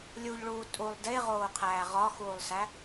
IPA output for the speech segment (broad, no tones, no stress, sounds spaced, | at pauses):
lʲ u ʎ ɭ uː tʼ u lˠ d e ʁ oː qʰ æː ʁ ɒ x uː lˠ s æ